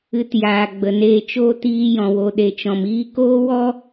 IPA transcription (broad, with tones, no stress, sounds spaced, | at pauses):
ɨ˧ t j aː˨ ɡ͡b ə˨ n eː˧ t͡ʃ oː˧ t iː˧ j ɔ̃˨ w o˨ ɗ e˨ t͡ʃ ɔ̃˨ m iː˧ k oː˦ w ɔ˦